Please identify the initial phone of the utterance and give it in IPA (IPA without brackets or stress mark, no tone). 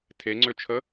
tʰ